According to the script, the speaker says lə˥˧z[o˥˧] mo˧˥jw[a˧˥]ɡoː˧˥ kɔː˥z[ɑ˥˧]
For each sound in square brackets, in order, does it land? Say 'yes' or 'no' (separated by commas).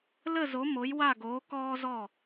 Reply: no, no, no